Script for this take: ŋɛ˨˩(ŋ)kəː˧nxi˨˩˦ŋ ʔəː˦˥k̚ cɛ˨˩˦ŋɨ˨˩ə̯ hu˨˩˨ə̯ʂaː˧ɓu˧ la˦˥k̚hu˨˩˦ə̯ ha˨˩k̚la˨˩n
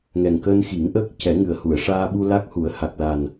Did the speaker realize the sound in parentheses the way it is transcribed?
yes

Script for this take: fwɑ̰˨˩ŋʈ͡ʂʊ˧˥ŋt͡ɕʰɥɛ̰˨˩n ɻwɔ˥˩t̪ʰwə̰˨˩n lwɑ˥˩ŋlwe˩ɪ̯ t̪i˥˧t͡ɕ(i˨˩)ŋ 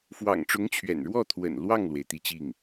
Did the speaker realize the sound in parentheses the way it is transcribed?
no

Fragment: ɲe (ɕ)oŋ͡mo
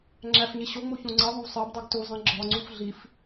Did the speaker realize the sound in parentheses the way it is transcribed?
yes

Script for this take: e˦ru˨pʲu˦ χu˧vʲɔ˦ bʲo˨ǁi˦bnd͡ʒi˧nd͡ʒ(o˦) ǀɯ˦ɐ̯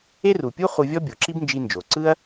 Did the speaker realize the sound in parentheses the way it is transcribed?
no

